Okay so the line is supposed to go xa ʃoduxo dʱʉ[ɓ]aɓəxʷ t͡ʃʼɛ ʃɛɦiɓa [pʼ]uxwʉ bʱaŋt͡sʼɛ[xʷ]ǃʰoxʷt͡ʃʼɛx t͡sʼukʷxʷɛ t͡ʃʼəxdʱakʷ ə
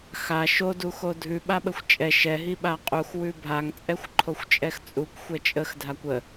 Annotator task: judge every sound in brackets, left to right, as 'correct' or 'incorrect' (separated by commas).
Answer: correct, incorrect, correct